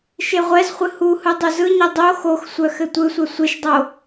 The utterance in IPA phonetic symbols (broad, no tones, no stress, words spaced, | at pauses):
ʃeʁʷɛzχʷɨ huhɯ dˤuzɯɲɛ dˤo xoxsʷœ xɘtʷɯsʷœ sʷeʃdˤo